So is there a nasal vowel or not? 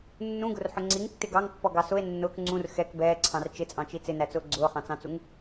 yes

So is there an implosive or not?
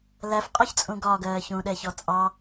yes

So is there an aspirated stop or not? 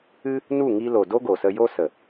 no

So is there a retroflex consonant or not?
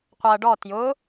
yes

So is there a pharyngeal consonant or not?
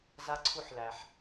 yes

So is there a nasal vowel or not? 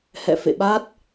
no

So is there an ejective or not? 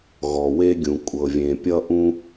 yes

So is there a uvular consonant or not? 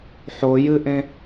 no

